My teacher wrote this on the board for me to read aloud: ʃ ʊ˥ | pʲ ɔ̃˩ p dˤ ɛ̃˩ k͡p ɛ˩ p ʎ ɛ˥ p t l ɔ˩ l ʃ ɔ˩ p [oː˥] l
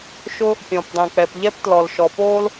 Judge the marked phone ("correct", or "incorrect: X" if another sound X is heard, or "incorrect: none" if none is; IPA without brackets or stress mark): correct